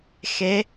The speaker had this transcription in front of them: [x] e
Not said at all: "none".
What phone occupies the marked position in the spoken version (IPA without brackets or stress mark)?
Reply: x